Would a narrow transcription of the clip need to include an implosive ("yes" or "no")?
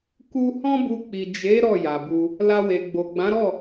no